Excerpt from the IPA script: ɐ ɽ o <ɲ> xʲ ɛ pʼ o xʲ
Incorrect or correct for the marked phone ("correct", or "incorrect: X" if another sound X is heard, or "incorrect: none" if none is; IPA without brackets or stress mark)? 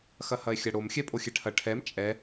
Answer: incorrect: m